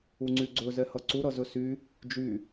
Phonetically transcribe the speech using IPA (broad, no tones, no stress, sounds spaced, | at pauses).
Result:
u ŋ͡ǀ y ɡ͡ǀ ɵ z ɛ h ʌ ǀ u ɾ ʌ z ɵ s y | d͡ʒ y